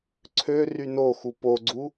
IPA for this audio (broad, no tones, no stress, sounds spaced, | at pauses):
ǀʰ ø r y n o x u p o ɡ͡ǀ u